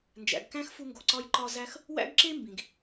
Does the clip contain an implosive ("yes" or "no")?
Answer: no